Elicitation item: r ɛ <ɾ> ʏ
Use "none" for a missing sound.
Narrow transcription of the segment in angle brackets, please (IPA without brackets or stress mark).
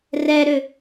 ɾ